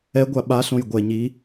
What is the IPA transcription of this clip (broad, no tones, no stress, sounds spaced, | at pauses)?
ɛ ɡʷ a ɓ a ɬ õ j ɡʷ ɛ ɲ i